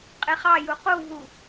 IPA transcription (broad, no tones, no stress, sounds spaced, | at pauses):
qʼ e χ ɑ j u q u v u